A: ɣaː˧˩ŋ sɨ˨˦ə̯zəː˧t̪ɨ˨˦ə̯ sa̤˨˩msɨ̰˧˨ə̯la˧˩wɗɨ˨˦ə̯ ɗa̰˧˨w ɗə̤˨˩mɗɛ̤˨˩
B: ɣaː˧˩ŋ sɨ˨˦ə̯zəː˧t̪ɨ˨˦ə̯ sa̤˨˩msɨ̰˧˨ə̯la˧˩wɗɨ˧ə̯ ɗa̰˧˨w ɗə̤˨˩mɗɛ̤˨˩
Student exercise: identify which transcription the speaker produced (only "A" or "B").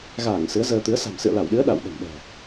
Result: A